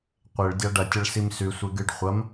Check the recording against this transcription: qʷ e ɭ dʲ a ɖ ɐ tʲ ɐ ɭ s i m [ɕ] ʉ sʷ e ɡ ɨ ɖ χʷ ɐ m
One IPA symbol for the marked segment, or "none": s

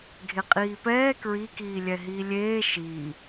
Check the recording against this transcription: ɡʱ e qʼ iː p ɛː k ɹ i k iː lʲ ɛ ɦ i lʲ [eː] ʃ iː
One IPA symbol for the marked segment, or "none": eː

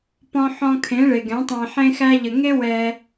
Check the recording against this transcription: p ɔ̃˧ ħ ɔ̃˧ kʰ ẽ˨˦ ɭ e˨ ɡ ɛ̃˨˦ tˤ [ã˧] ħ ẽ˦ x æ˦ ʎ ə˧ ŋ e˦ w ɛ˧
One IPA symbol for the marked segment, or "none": æ̃˧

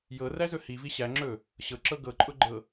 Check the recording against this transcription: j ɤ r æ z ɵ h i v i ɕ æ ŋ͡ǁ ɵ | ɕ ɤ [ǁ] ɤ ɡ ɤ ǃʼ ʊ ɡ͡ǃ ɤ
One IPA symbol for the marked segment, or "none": ǁ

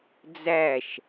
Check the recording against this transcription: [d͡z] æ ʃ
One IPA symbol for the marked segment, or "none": d͡z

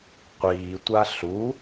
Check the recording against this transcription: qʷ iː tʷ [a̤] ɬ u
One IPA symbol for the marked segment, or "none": a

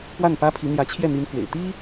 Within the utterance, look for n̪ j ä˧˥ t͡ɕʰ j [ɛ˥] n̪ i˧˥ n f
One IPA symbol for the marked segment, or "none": ɛ˥˩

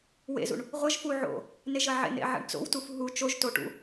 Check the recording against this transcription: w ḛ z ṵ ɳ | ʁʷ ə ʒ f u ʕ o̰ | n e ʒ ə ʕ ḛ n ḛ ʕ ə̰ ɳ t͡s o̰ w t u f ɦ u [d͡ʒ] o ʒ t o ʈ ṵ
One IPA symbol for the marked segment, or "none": t͡ʃ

